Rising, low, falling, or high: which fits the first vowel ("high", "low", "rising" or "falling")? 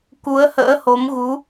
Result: rising